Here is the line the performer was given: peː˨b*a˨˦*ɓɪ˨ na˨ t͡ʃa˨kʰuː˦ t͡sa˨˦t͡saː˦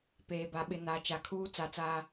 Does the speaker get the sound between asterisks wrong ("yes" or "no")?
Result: yes